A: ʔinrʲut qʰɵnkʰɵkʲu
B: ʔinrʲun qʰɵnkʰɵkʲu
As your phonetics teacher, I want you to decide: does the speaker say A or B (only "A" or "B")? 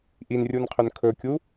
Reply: B